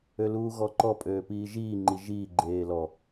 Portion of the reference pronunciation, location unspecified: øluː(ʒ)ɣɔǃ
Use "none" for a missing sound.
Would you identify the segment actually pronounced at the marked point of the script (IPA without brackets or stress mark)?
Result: none